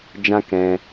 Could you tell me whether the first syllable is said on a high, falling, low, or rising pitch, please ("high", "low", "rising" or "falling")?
high